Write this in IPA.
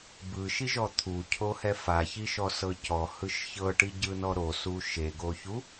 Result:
bɯʃiʒɔ t̪ʰucʰohɛ façiʃɔsɤ cɔhɯʃ çɤʈiɟɯnɔ ɾosu ʃeɡoçu

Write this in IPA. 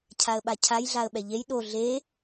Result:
cʰaə̯ɓacʰaj ɮaə̯ɓɛʎej ɗo ɮe

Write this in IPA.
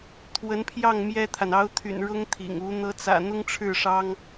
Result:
t̪ʰwə˧˥npʰjɑ˥˩ŋ mjɛ˥t̪ʰa˨n ɑ˧˥ʊ̯t̪ʰy̰˨˩n ɻʊ˥ŋt̪ʰḭ˨˩ŋu˧˥ n̪ɤ˧˥t͡sä̰˨˩ n̪ʊ˥ŋʈ͡ʂʰɻ̩˥˩ʂɑ˥ŋ

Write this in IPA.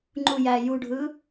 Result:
ŋ͡ǃujæ juɖʱɯ

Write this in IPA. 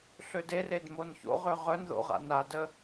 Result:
ɬødered monço̰ʁø ʁœnðo̰ ʁa̰nadə

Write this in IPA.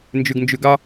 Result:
nd͡ʒʉɡnd͡ʒʉɡɑ

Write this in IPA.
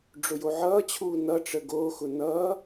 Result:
ɖ͡ʐʊjoʕʌːt͡ɕʰuː nʌʈ͡ʂə ɡoːxʊ nʌː

